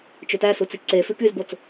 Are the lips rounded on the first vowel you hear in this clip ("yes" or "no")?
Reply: yes